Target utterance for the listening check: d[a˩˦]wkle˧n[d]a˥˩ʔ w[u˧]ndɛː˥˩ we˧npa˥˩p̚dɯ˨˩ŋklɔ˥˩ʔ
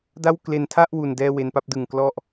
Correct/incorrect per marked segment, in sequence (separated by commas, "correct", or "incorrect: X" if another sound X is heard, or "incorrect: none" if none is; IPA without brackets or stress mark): incorrect: a˥˩, incorrect: tʰ, correct